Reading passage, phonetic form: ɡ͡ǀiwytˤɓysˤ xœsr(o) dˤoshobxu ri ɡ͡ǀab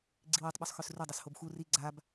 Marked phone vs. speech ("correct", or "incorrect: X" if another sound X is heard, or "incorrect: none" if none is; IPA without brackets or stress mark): incorrect: u